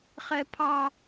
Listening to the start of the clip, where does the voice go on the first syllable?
high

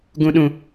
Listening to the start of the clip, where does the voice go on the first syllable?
low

